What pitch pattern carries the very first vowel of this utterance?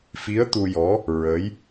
rising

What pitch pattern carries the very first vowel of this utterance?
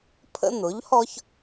high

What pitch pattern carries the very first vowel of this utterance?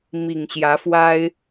low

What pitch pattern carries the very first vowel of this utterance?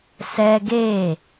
high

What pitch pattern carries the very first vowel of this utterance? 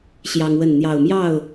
high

